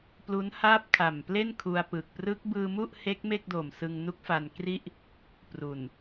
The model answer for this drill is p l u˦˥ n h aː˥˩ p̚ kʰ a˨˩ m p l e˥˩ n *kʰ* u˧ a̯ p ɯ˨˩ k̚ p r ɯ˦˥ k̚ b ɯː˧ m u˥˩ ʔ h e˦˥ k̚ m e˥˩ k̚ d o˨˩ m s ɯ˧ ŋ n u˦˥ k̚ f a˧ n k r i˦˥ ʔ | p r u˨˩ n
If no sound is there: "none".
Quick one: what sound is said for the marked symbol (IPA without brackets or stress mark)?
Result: kʰ